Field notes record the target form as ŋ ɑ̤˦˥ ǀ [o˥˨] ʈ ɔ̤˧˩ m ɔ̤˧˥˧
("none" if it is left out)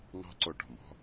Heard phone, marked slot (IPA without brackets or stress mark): o˧˩